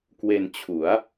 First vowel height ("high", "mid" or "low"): mid